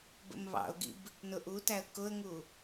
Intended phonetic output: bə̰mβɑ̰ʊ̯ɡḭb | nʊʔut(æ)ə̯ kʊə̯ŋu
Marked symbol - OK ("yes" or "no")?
yes